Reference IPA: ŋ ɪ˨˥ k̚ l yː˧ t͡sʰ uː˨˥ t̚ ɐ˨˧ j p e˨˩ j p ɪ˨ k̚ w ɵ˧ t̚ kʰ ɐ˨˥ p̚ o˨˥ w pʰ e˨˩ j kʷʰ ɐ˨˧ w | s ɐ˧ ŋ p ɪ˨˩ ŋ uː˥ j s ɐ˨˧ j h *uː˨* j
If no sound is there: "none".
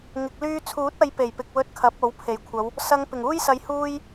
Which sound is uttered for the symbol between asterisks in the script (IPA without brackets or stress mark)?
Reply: uː˥